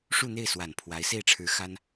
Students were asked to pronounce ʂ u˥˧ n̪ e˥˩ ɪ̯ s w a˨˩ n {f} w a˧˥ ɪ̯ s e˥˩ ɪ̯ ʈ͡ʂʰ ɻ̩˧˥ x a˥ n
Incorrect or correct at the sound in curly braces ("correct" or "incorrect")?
incorrect